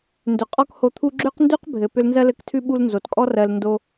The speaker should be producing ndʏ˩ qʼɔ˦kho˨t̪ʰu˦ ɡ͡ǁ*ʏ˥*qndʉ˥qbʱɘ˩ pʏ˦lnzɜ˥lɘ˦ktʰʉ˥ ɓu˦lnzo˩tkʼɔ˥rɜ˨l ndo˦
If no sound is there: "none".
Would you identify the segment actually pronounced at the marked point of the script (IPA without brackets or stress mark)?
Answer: ʏ˥